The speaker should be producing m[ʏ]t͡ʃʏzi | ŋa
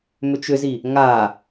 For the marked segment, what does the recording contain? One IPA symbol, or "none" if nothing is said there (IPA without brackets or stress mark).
ʏ